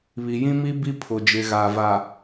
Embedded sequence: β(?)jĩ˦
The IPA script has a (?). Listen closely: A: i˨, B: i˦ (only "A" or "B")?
A